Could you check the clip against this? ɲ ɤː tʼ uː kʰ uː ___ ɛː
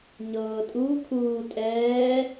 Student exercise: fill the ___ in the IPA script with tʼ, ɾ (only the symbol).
tʼ